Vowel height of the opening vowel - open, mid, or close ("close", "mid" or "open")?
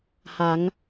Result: open